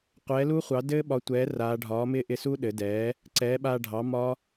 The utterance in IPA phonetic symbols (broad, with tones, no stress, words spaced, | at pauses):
qʷɛː˩˥lu˦˥χʷɑ˩˥dɘː˦˥ ɓɒ˩˥tʷɛː˩˥raː˩˧ɖʱɒː˩˥ mɪː˦˥ʔɪ˧su˦˥ ɗɘ˩˧dɛː˩˥ | ǀɛː˩˥ɓaː˧ɖʱɑ˩˥ mɒ˦˥